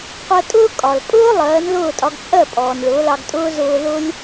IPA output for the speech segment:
qʷ ɜ˧ tʼ ʊː˥ kʼ ɒ˩ l pʼ ʊː˥ lˠ ɜː˩˥ n l ʊː˥˩ tʼ ɒ˧ ɡ t͡sʼ ɜ˥˩ pʼ ɔː˩ n ɭ ʊː˩˥ l ɑ˧ ɡ tʼ ʊː˥ z ʊː˧ l ʊ˥ lʲ

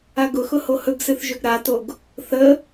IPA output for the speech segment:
a ɡ ʊ x ʊ h o h ɵ ɡ s ɨ θ ʒ ɵ ɡ ɾ a t o ɡ | θ ə

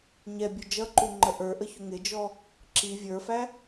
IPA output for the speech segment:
ɲ ɛ bʲ ʊ d͡ʒ ʌ ǃ u ŋ͡ǃ ə ʔ ə˞ ʔ ə ç ʊ ŋ ɪ d͡ʒ ɔ | ǁ i vʲ ə˞ f æ

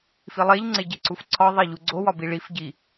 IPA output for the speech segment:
f i lˠ e ʎ ŋ͡ǀ e ɟ e ǀ u f ǀʰ ɒ ðˤ e ʎ u ɡ͡ǀ o w ɒ b i ɭ i f ɟ i

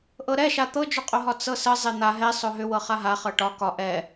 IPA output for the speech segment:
ʔ ɤ ɾ ɛ ʃ a t̪ ɤ d͡ʒ ɵ qʼ ɵ ɦ ɒ t͡s ɤ s ə zˤ e n̪ a ɦ ɛ sˤ ɵ ɦ ʏ w ɤ χ a ɦ a χ ɤ ʈ ɒ k ɒ ʔ ɛ

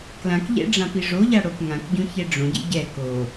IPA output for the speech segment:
k l ã k ʎ ɛ̰ ɖ͡ʐ ã p i ʐ o ʎ a ɽ o p ŋ ã k ɟ õ ç ɛ ɖ͡ʐ õ ɟ ḭ ɟ ɛ k o

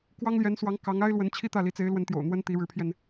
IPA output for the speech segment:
k w ɑ˥ ŋ l j ɛ˧˥ n s w ɑ˧˥ ŋ k ɑ˧˥ ŋ a˥ ɪ̯ l w ə˧˥ n t͡ɕʰ i˥˧ t̪ ä˥˩ l i˧˥ t͡s e˧˥ ɪ̯ l w ə˧˥ n t̪ j o̰˨˩ ʊ̯ n̪ w ə˥ n t̪ i˧˥ ɻ ɻ̩˧˥ pʰ j ɛ˧ n

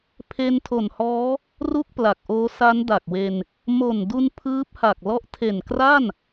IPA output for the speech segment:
pʰ e˧ n tʰ o˨˩ n h ɔː˦˥ | r u˥˩ k̚ p l a˨˩ k̚ ʔ oː˦˥ s a˦˥ n d a˨˩ k̚ w e˧ n | m o˨˩ n d u˧ n pʰ ɯː˦˥ p̚ h a˨˩ k̚ l ɔ˦˥ ʔ tʰ e˨˩ n k r a˥˩ n

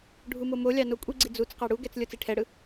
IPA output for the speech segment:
ɖʱ u m o m o lʲ ɑ n o kʷʼ i ɡ͡ǀ i d͡z u t͡s q ɑ ɽ u ɡ ɛ t͡s lʲ o t͡s i ʈʰ ɛ ɽ ɯ

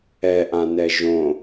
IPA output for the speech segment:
ɛ ʔ ã n ɛ ʒ õ

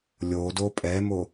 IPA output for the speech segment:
lʲ o d o pʼ ɛ m o

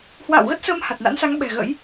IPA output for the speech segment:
h w a̰ː˧˨ w ɣ ə˦˥ t̚ s əː˧ m h a˨˩ t̚ n a̰˧˥ n s a˨˦ ŋ ɓ ɛ̤˨˩ ɣ ə̰˧˥ j

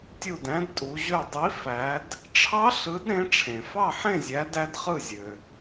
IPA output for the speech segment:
tʲ u˥˨ d æ̃˦˥ d tʼ u˨˦ ʑ ø˥˨ dˤ i˨˦ f æ˨˦ d | ʈ͡ʂʰ ɑ˦˥ ɬ ɯ˨˦ d ɾ ẽ˨˦ ʈ͡ʂʰ ẽ˩ f ɑ˥˨ ħ ẽ˥˨ zʲ æ˨˦ d æ˦˥ d χ ɯ˥˨ zʲ ø˩

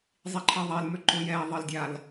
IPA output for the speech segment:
zˤ i ǃʰ e ðˤ e l m ø ǃ ʊ j ɛ ðˤ ə l dʲ a l

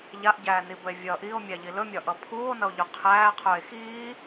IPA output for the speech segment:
ʎ a ʔ ɟ æː n i b ɵ e̯ vʲ ʌ ʔ i o̯ mʲ æ ʎ i l ɵ mʲ ɒ ʔ ʌ pʰ uː o̯ n ʌ o̯ ʎ ɵ qʰ æː qʰ ɵː e̯ x iː

